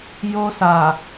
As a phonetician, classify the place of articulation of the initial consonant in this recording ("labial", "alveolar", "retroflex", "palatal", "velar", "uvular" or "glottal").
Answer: palatal